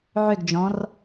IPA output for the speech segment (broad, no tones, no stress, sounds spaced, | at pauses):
ʕ ʏ ɡ d͡ʒ ɔ̃ r